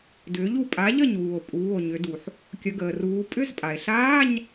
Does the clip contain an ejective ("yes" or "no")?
yes